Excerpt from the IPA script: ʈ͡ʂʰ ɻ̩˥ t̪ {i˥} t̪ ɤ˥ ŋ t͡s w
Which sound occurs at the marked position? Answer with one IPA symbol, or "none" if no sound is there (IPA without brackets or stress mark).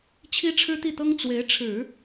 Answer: i˥˩